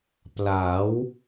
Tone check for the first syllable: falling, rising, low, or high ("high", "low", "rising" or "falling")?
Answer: rising